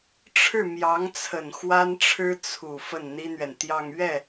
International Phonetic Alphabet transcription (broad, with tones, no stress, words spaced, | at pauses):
ʈ͡ʂʰɻ̩˥˩mjɑ˧˥ŋt͡sʰə˨˩n xwa˥nʈ͡ʂʰɻ̩˥ t͡sʰu˨˩ fə˥˩nn̪i˥n̪ɥɛ˨nt̪jɑ˥˧ŋ ɥɛ˥˩